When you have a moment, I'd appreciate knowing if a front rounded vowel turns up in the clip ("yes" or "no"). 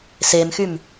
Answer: yes